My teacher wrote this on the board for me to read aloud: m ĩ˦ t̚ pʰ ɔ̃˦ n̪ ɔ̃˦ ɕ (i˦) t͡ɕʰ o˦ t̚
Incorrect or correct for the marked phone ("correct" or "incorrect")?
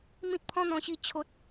correct